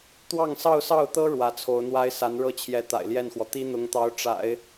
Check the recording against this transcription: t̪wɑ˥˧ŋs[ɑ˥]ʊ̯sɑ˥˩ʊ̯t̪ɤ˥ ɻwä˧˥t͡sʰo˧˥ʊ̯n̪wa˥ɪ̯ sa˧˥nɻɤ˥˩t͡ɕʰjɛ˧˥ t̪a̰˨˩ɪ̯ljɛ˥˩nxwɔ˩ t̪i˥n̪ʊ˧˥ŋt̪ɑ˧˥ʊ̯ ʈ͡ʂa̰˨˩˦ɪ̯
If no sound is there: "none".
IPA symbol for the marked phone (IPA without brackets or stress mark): ɑ˥˧